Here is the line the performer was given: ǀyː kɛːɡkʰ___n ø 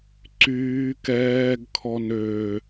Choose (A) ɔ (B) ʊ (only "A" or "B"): A